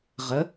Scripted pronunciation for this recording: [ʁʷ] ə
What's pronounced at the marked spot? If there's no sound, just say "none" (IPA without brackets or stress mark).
ʁ